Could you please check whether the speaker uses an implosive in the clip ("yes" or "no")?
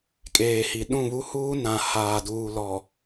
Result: yes